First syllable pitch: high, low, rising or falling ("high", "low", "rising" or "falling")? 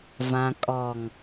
low